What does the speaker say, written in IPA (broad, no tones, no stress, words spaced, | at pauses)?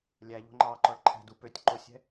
lʲæʎo̤ ŋ͡ǃɑǃɔɭ ǃʰæ̤du pøtʲ ǃosʲɛ̤